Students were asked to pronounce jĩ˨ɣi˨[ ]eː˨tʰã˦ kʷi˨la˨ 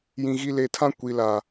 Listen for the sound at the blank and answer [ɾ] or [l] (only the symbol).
l